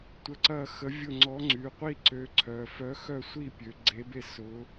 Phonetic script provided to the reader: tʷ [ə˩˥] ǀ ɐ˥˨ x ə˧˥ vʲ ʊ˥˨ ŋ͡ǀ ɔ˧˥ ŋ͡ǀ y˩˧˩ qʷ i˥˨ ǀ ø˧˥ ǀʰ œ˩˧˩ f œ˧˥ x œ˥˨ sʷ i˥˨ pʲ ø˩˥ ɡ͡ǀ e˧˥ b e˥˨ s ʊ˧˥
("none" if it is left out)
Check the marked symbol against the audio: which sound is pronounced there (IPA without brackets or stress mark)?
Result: ə˧˥